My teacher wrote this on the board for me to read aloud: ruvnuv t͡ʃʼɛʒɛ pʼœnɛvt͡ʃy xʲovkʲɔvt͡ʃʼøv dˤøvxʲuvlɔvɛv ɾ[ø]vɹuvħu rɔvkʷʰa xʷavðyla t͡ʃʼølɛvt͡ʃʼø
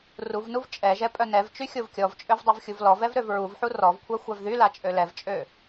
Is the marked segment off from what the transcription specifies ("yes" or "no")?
no